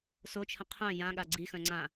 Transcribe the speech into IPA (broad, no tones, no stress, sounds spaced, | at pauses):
s o t͡ʃʰ ə̃ qʰ œ̃ j ã ɠ a ɡ͡ǀ i x œ̃ ŋ͡ǀ ã